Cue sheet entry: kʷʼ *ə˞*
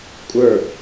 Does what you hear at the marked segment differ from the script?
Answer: no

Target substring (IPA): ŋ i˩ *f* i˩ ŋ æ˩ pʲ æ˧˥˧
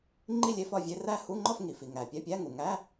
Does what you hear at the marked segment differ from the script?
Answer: no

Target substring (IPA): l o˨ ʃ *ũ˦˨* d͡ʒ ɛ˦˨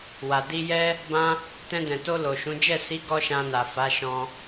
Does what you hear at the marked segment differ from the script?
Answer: yes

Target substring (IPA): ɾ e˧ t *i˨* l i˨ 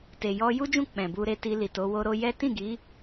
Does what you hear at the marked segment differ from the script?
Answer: yes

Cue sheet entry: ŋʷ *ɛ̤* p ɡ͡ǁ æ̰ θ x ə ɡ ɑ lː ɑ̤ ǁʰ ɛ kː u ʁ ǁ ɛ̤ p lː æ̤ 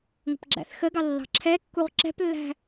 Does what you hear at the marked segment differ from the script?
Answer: yes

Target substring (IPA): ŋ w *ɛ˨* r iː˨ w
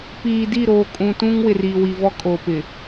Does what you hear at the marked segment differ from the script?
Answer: yes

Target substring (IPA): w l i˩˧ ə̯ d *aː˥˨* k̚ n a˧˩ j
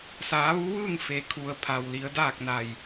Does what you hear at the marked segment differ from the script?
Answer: no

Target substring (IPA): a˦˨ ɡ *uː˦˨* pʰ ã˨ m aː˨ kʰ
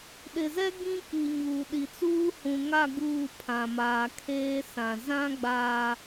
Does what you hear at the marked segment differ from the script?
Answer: no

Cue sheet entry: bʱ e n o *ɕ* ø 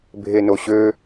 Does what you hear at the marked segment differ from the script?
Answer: no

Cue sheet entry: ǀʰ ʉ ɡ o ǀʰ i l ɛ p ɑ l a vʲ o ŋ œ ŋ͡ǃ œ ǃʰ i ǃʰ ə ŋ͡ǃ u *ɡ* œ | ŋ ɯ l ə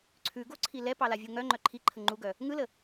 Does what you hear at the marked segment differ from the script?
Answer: no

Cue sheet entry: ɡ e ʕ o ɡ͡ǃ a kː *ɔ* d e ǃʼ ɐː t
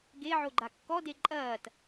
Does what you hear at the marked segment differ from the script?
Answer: no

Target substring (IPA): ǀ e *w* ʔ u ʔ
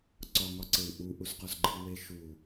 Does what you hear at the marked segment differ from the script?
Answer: no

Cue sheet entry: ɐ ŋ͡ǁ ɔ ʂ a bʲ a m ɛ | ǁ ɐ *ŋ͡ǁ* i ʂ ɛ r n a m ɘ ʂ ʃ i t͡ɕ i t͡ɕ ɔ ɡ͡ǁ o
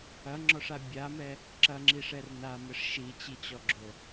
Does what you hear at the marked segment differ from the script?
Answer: no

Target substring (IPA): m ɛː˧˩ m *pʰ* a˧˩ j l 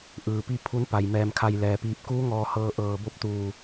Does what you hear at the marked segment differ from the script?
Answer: yes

